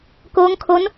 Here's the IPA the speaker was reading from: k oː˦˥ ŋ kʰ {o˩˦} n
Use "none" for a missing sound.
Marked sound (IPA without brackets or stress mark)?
o˦˥